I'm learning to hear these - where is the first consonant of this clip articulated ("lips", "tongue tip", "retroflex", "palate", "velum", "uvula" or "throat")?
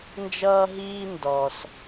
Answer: tongue tip